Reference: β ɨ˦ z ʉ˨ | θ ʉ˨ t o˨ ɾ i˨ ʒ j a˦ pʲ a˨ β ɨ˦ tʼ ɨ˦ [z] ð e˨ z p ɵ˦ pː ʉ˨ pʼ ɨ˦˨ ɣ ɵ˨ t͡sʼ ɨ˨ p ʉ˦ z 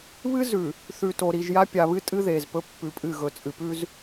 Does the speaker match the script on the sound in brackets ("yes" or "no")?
no